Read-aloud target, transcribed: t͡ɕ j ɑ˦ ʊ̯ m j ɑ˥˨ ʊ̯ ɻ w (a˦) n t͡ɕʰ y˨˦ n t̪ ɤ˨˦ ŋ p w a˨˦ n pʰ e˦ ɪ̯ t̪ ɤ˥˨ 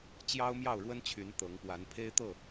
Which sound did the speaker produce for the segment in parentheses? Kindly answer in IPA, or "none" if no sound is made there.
ə˦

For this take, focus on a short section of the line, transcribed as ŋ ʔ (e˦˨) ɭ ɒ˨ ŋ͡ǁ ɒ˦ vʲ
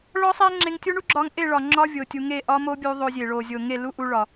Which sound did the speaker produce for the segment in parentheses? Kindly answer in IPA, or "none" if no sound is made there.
e˦˨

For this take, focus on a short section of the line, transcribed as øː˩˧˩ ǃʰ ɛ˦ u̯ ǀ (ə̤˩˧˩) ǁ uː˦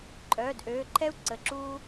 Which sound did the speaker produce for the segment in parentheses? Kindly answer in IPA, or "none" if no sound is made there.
ə˩˧˩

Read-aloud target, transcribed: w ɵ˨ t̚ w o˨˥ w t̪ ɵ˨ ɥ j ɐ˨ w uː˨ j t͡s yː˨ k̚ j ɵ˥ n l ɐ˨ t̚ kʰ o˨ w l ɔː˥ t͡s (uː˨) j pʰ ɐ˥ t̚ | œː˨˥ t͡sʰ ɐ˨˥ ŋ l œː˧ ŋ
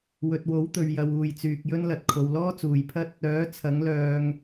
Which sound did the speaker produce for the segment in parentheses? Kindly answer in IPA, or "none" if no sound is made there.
uː˨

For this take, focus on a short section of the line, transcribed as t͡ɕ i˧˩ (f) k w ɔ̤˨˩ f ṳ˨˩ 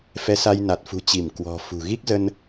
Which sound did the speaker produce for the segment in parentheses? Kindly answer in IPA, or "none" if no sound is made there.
m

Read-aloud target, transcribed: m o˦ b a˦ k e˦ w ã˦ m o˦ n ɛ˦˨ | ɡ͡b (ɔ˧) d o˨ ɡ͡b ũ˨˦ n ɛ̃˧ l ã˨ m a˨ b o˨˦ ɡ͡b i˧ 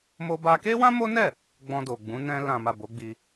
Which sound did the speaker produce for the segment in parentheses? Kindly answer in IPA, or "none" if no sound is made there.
ɔ̃˧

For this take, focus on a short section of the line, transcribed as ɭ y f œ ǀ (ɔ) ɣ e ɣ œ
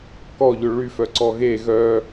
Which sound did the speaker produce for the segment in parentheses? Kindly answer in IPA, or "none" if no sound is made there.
ɔ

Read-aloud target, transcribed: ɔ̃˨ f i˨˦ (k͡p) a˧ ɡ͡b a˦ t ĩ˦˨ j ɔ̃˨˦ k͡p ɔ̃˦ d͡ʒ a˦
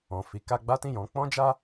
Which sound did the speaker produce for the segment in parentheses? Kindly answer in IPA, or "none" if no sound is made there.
k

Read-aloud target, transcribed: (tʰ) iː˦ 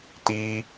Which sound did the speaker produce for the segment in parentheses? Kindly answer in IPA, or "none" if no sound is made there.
t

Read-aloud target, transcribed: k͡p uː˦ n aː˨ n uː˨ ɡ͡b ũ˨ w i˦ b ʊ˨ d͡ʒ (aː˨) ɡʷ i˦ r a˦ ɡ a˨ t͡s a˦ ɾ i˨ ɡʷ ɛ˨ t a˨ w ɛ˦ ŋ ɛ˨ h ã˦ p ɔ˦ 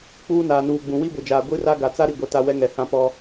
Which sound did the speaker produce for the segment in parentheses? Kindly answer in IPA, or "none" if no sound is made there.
aː˨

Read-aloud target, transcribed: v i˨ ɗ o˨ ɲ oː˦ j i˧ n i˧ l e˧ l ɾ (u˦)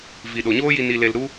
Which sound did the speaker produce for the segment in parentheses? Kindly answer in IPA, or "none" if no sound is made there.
u˦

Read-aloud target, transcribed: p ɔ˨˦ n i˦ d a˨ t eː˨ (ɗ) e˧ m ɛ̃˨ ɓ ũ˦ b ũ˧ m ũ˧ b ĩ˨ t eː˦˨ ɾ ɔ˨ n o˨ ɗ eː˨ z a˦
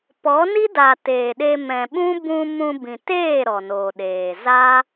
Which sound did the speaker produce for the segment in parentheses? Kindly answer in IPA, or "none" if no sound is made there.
ɗ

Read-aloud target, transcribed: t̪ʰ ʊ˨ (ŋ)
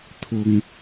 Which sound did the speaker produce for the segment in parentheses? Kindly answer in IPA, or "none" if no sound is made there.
ŋ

